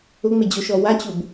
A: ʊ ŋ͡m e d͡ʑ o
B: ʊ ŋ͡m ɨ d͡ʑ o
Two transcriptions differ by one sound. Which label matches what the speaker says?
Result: A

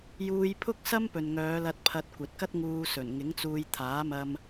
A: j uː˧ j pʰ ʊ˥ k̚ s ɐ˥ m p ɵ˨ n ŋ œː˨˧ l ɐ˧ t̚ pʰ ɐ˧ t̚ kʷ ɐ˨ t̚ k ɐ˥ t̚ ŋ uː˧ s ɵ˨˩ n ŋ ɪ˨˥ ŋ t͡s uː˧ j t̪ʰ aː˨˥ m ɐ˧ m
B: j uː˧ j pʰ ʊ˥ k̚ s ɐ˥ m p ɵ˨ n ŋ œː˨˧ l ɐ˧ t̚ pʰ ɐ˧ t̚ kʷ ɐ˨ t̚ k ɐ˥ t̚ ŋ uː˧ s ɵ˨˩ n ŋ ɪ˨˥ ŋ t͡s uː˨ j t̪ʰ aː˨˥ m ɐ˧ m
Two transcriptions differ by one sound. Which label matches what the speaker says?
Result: A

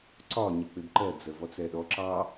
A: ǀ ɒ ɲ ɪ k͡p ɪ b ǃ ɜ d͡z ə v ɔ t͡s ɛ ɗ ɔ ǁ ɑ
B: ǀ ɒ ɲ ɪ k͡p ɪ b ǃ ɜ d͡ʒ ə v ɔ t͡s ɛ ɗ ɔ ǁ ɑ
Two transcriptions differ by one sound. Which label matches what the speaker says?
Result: A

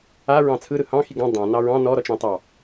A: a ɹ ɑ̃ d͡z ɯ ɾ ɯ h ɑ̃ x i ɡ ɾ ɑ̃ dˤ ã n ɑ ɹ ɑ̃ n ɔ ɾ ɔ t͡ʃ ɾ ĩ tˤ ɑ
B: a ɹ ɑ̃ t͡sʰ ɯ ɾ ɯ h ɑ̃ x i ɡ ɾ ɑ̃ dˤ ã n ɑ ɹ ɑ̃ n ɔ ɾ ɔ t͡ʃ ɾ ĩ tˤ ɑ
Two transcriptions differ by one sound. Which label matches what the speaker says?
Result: B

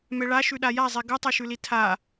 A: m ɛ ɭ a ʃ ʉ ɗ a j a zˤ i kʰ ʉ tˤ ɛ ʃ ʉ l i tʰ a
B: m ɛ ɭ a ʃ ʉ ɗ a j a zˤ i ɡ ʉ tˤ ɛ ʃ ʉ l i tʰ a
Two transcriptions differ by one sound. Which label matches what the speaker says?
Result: B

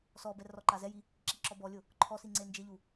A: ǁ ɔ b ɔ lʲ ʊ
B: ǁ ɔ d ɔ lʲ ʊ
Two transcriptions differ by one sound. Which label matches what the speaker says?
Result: A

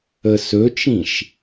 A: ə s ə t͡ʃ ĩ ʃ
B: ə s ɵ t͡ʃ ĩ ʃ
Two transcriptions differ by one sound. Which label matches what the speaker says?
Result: B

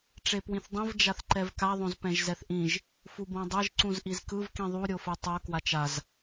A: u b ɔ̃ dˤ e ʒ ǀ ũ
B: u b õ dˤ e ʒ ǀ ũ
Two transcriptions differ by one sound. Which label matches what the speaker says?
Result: B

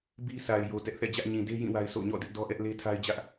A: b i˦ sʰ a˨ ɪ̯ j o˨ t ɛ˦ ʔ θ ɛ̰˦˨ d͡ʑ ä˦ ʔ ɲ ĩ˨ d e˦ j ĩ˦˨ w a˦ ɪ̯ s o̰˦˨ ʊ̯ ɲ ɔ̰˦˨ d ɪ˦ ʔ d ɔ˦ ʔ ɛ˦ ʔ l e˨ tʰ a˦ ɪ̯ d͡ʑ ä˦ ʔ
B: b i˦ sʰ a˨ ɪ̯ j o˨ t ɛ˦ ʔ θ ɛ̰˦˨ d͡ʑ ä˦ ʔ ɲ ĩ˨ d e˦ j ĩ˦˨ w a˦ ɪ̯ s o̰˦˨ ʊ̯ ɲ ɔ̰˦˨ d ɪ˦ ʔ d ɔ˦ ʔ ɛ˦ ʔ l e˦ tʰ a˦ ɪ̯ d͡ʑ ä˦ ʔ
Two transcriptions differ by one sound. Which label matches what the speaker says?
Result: B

